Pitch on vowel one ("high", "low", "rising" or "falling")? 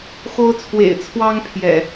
high